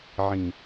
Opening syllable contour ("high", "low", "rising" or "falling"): low